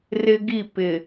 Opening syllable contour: high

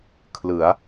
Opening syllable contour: rising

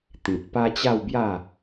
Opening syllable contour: low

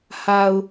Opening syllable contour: low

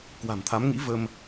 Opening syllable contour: low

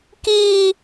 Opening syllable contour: high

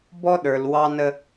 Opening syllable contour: high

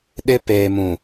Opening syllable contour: high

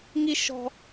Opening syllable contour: high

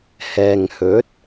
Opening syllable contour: low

